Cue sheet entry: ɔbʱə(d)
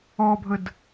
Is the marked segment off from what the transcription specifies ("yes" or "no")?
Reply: no